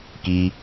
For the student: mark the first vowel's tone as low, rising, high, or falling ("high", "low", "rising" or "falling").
high